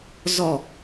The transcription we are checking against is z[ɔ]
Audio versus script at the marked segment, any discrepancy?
no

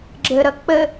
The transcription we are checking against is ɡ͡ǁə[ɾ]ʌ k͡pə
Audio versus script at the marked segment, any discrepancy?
no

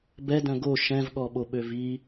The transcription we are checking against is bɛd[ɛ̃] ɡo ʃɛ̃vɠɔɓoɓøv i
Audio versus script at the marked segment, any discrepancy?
yes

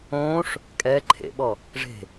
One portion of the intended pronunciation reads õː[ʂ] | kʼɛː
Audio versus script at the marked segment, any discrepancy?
no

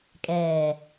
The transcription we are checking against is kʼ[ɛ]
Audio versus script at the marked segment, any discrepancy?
yes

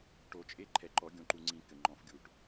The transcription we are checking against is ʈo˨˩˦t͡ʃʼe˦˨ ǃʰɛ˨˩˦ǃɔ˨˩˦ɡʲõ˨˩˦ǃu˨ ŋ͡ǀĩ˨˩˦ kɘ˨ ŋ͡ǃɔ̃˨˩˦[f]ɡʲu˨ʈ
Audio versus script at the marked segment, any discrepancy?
no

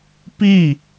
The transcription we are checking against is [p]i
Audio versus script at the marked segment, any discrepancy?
no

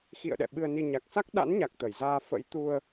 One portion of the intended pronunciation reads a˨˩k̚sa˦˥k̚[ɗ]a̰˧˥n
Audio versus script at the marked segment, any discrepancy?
no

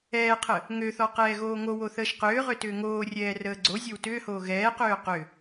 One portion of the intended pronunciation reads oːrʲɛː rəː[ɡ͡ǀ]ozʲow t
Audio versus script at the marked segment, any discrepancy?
no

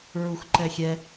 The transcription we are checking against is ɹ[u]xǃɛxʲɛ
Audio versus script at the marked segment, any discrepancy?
no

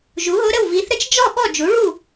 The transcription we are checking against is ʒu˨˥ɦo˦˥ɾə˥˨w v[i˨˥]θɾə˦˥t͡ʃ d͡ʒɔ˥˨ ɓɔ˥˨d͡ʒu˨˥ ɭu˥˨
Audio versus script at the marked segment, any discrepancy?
no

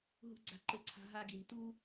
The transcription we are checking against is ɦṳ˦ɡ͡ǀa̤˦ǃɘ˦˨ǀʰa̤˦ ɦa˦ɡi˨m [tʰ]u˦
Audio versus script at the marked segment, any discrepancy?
yes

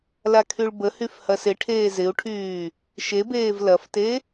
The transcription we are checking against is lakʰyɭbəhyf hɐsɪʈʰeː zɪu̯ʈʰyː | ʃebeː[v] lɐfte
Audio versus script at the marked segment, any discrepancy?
no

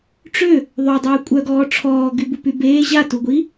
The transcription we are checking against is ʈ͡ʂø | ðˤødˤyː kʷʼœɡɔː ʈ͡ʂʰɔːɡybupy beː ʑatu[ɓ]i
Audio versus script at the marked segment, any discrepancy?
yes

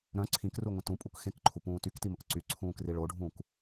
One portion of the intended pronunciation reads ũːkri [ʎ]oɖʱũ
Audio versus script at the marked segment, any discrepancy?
yes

